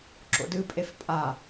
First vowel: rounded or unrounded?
rounded